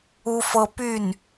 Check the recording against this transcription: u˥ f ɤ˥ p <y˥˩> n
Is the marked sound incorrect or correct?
correct